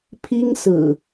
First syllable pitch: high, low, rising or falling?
high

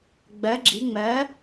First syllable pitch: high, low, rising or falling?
rising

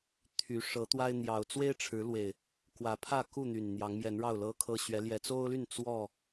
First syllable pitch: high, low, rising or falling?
rising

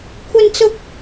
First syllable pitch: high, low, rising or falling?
high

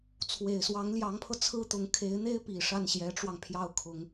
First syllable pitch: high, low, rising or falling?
low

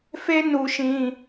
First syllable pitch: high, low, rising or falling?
high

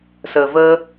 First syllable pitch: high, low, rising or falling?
low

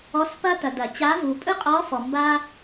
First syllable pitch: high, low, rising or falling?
rising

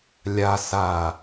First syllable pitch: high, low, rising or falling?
low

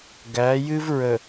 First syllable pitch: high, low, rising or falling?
rising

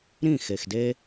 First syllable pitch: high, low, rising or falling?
falling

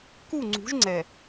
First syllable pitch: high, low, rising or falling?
falling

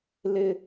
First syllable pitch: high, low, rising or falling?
high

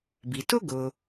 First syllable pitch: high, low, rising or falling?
low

